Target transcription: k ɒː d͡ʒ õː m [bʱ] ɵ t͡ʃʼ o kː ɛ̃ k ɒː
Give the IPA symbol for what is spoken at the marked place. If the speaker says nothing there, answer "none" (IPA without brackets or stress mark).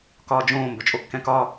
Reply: b